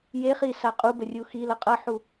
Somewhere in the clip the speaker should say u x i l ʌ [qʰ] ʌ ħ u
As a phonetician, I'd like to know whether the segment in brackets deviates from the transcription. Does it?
yes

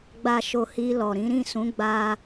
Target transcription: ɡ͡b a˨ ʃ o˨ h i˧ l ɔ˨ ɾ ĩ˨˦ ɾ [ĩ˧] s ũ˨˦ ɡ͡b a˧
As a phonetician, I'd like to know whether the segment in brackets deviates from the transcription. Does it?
yes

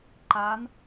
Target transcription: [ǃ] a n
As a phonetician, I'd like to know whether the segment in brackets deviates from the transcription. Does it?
no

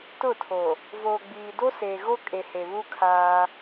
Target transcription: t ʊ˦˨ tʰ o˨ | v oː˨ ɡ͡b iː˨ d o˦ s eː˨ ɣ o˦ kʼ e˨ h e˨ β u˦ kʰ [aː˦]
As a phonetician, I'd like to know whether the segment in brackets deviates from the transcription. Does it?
no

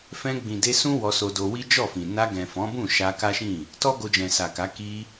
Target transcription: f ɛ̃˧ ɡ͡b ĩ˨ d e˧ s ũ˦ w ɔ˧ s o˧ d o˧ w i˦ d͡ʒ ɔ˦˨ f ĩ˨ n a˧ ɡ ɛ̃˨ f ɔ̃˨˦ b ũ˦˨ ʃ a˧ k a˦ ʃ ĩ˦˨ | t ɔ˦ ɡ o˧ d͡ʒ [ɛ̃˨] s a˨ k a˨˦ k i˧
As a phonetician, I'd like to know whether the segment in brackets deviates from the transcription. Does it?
no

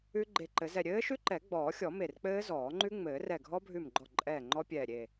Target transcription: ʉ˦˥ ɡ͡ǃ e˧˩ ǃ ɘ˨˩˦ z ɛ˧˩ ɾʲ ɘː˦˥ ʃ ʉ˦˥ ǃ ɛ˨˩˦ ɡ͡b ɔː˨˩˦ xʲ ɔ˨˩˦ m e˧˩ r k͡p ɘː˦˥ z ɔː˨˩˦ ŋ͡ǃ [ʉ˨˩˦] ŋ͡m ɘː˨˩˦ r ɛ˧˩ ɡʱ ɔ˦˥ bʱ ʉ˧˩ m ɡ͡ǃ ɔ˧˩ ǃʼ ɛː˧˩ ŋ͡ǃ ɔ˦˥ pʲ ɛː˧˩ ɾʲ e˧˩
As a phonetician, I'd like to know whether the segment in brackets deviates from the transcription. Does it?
yes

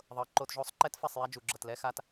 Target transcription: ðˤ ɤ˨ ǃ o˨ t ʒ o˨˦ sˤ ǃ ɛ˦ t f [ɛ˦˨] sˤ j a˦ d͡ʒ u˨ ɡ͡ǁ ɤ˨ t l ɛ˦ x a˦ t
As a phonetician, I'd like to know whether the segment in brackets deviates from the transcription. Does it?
no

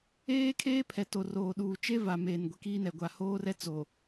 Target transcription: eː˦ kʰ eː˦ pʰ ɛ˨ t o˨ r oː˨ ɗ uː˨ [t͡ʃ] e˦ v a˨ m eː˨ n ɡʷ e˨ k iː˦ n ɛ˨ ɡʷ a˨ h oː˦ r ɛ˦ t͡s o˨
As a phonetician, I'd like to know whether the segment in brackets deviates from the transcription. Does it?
no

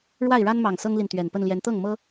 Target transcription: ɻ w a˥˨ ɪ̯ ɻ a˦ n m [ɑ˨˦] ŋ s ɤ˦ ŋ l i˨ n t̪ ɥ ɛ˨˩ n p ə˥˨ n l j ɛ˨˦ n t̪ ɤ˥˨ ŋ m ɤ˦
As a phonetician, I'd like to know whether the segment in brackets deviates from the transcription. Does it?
yes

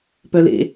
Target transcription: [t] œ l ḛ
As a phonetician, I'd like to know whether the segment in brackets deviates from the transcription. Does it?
yes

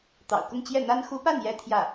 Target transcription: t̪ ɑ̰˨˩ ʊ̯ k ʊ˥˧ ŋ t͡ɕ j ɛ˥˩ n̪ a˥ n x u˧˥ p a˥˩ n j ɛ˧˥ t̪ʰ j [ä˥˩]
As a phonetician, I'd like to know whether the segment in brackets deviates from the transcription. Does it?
no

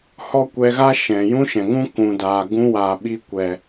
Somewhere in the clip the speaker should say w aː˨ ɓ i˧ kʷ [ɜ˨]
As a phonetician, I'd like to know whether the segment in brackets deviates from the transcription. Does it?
yes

